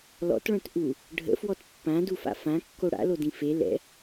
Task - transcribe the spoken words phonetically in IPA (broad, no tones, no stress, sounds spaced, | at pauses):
l ɔ̰ t ɭ œ̃ t ʔ u | ɖʱ ə̰ f w ɔ t pː ã d u f a̰ f ã kː o ɽ a̰ l o d ĩ f e l ɛ̰